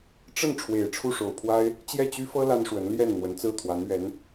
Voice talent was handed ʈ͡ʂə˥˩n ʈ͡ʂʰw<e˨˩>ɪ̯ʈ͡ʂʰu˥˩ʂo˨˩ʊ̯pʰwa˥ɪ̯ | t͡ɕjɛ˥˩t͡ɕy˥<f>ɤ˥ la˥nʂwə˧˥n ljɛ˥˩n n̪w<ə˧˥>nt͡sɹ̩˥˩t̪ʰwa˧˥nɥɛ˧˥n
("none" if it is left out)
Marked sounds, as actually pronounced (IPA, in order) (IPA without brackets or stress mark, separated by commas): e˨˩, f, ə˧˥